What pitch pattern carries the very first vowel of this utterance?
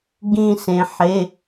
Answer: falling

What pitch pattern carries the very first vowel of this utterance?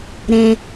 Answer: low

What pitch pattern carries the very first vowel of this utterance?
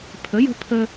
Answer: rising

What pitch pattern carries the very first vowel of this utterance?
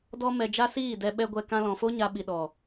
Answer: high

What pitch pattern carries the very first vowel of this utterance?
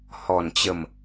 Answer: low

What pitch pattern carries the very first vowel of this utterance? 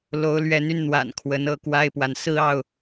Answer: rising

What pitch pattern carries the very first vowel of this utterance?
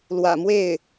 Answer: low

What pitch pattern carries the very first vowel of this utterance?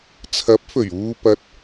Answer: rising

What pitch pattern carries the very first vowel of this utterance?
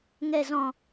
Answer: low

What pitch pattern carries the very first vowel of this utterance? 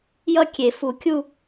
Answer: falling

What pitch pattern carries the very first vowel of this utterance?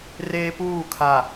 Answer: high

